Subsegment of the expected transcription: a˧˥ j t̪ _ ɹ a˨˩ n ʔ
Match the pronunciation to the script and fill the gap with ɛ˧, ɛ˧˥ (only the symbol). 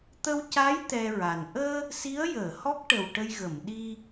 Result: ɛ˧